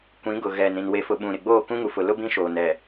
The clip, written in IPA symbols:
kʷĩ˨˦ ɡʊ˨ɣɛ˨nɾĩ˨n we˨fʊ˨ ɓũ˨ɾɪ˨ɡ͡boː˦˨ kũ˦ŋu˨fʊ˨lʊ˦ bĩ˦ʃoː˨n ɛ˨

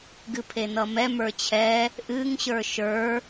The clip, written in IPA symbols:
ɡɨpʰenʌmɛ mə˞t͡ɕʰɛ | ʔɨŋ ɕə˞ʃə˞

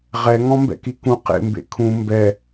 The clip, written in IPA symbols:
ʁɛŋɔ̃ mbɛ̰kikũ qḛ mbḛkʰũ mbɛ

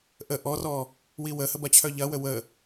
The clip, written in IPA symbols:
ʔə ʔɔrɔ | wiwəhə bɐt͡ɕʰœʎɐwə wə

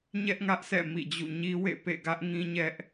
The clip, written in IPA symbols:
ɲɛ˦ʔŋä˦ʔsɛ̰˦˨ mḭ˦˨d͡ʑṵ˦˨ ɲi˦wḛ˦˨ pḛ˦˨ɡä˦ʔ ŋĩ˦ɲɛ˦ʔ

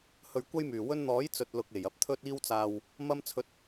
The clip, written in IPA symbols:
hɵ˨ɥkʷɐ˧jmyː˨˩ wɵ˧nn̪ɔː˨˥j t͡sɵ˨t̚ lʊ˨k̚e˨˩j ɐ˧p̚t̪ʰɵ˧t̚iː˧wt͡saː˨w | mɐ˧mt͡sʰɵ˨˥t̚

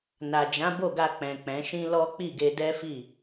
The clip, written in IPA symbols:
na˨d͡ʒã˨˦ bo˦˨ɡa˧ k͡pɛ̃˨k͡pɛ̃˨˦ʃĩ˦ lɔ˦ k͡pi˦˨ɡe˧dɛ˦ fi˦˨

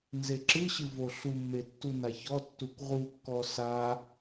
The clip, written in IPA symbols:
nzeǁɨɕɨ voɬumːe tːunaçɔtːukʷ ʁukːɔ sa

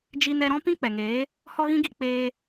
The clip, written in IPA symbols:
d͡ʒi˧nɛ˧ɾɔ̃˦ pĩ˦k͡pɛ˨ŋeː˨˦ | hɔ˦ɣĩ˦ɡi˦˨ k͡peː˧

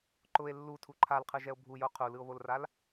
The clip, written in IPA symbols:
ǃʊe̯ lːutʰu ǃʰalqʰɯʒɛo̯ bʱujo qʰulɯo̯βolral

